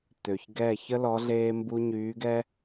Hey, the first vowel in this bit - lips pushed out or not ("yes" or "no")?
yes